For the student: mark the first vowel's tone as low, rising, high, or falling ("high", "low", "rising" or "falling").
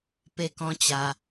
high